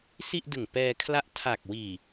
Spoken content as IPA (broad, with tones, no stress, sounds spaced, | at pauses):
s i˥˩ ʔ d ɯ˨˩ ŋ p ɛː˧ kʰ l a˦˥ ʔ tʰ a˨˩ k̚ w iː˨˩